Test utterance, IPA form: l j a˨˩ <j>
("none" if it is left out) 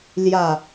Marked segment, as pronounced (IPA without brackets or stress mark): none